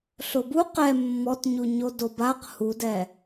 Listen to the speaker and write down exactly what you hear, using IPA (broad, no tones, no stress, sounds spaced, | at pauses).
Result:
ɬ ʊ b u q ɛ mː ɔ t ɲ u ɲ o d o b a q h u d ɛ